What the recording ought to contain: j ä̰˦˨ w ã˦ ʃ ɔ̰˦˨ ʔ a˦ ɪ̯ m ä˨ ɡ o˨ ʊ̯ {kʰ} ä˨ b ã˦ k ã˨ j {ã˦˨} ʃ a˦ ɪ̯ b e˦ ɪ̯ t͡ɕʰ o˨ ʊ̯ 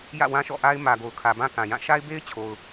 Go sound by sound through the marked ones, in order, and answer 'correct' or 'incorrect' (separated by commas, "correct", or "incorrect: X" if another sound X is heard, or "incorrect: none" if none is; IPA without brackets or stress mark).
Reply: correct, correct